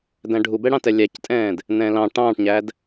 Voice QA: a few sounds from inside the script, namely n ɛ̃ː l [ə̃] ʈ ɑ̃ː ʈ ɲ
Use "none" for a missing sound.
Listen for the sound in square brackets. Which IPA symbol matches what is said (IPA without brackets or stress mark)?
ɑ̃